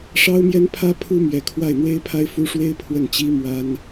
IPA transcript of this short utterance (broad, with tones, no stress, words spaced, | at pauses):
ʂɑ˥ʊ̯mjɛ˥n pʰä˥pʰu˥mɥɛ˧˥ kʰwa˥˩ɪ̯n̪we˥ɪ̯pʰa˥ɪ̯ fu˥ ʂwe˥ɪ̯ pʰwə˥˩nt͡ɕi˥ mwa˥n